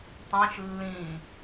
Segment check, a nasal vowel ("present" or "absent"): present